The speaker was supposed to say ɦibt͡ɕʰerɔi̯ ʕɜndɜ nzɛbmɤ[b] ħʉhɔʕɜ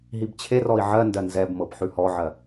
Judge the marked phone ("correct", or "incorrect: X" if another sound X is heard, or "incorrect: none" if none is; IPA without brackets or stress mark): correct